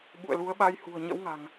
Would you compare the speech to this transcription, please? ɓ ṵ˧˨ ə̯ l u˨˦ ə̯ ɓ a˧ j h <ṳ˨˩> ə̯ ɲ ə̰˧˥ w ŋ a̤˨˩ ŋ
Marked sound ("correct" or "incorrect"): correct